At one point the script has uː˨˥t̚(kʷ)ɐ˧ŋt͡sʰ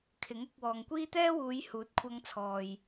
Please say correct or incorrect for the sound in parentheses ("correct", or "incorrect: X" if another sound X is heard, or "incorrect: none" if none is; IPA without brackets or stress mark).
incorrect: kʷʰ